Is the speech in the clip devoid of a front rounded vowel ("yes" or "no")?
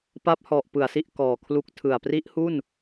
yes